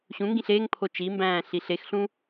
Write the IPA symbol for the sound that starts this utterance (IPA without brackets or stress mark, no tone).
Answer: ɕ